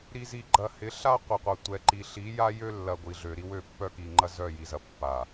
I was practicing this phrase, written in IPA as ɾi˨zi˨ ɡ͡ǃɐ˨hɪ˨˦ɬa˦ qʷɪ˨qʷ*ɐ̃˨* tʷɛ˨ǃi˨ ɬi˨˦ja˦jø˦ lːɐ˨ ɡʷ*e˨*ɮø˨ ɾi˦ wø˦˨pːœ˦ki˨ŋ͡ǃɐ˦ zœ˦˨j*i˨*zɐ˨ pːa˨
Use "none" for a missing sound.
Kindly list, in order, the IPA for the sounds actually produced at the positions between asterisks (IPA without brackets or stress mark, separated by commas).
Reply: ɐ˨, i˨, i˨